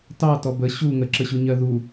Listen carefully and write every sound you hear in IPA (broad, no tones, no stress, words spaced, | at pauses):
tɑtɔ bə ɕu ŋəǁəɕuɲɜ ðu